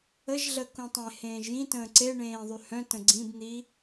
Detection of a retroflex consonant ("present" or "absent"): present